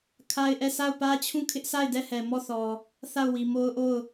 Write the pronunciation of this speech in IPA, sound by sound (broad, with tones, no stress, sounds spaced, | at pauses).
kʰ a˦ ɪ̯ ʔ ɛ˦˨ s a˦˨ ʊ̯ p ä˦ t͡ɕʰ ũ˦˨ kʰ ɪ˦ ʔ s a˦˨ ɪ̯ d ɛ˦˨ h ɛ˨ m ɔ˦˨ θ ɔ˨ | θ a˦˨ ʊ̯ w i˨ m o˦ ʊ̯ ʔ o˦˨ ʊ̯